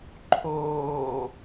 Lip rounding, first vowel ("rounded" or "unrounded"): rounded